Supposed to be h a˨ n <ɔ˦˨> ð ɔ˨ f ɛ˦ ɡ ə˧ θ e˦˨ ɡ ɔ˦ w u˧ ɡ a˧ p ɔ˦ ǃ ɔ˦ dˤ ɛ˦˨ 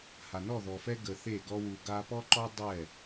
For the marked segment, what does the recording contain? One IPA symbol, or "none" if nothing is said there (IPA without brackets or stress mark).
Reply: ɔ˦˨